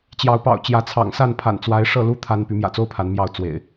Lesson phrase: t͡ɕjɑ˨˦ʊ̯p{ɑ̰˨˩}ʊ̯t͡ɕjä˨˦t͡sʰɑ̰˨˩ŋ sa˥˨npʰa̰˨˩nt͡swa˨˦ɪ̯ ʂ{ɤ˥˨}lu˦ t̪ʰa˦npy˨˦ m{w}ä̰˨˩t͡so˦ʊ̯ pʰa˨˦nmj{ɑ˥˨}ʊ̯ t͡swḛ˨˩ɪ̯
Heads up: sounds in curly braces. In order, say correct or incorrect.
correct, correct, incorrect, correct

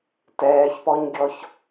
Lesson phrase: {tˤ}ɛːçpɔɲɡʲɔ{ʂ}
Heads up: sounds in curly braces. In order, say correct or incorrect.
incorrect, incorrect

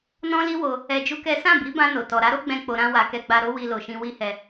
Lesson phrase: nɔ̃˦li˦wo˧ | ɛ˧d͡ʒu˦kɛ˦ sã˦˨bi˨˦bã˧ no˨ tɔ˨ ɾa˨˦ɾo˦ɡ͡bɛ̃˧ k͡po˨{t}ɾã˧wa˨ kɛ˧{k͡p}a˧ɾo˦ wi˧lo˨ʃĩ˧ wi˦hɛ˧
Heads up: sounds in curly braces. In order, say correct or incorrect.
incorrect, incorrect

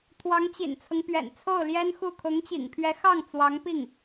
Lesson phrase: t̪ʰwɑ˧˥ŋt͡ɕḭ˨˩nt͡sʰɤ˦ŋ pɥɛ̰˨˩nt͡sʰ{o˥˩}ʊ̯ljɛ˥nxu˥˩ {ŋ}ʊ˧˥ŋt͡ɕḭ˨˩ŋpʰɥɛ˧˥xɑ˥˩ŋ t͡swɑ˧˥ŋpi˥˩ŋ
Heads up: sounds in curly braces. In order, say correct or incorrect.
correct, incorrect

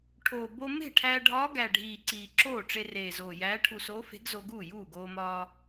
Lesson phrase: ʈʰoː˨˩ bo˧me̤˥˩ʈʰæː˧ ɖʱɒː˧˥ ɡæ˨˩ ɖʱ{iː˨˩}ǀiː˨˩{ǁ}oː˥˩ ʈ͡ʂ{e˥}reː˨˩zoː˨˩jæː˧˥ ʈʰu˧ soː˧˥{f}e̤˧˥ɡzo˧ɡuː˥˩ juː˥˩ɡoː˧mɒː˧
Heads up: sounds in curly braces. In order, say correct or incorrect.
correct, correct, incorrect, correct

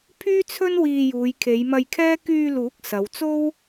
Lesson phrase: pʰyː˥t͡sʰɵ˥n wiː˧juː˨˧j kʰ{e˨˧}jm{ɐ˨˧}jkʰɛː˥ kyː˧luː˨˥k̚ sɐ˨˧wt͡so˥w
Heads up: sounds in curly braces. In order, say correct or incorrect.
correct, incorrect

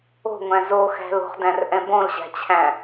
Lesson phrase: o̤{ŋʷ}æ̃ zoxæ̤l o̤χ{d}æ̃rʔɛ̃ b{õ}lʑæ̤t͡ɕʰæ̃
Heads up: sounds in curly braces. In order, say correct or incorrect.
correct, correct, correct

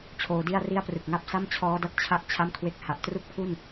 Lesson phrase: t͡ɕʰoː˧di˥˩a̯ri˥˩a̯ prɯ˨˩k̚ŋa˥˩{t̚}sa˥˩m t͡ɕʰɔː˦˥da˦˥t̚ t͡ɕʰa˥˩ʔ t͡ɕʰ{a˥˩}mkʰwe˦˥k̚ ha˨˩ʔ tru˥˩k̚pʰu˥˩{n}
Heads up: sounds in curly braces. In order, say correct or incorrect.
incorrect, correct, correct

